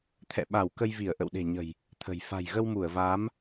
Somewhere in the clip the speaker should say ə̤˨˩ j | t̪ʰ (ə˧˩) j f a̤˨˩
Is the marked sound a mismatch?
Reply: yes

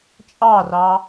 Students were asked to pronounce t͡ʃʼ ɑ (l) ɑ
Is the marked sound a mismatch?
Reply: yes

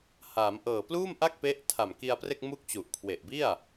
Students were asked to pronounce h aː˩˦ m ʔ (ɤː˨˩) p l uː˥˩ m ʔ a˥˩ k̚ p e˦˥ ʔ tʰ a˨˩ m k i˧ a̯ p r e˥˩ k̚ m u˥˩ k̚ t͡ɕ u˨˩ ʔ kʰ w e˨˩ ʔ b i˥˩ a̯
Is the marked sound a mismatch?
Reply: no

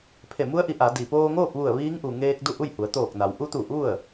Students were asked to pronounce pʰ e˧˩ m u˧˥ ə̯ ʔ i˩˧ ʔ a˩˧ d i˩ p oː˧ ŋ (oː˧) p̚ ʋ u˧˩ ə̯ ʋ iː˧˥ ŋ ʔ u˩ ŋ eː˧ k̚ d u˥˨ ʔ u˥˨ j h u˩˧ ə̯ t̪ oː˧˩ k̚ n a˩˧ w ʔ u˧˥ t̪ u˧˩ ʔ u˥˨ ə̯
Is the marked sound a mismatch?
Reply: yes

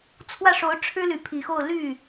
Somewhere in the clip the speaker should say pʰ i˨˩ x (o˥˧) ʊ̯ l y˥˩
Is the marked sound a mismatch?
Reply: no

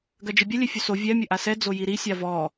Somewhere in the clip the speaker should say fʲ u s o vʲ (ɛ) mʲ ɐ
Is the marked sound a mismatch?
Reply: no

